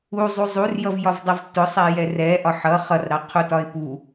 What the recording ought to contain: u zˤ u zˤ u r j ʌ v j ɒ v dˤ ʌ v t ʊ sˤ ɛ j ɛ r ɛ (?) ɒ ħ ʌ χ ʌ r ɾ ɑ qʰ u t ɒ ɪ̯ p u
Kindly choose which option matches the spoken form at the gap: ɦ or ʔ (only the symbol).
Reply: ʔ